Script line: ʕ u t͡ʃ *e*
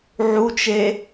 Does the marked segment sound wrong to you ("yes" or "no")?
no